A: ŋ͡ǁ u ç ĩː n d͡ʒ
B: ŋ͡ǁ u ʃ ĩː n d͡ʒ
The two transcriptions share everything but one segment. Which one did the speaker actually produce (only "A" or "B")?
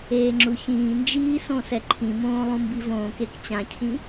A